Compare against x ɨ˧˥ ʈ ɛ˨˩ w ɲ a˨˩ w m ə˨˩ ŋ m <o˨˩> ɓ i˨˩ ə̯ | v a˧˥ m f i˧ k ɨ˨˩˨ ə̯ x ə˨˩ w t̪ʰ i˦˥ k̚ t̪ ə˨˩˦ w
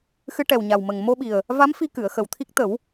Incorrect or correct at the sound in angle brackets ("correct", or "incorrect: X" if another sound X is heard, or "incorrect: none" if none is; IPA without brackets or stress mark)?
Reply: incorrect: o˧